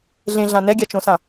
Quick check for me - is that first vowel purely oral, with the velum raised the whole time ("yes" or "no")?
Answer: no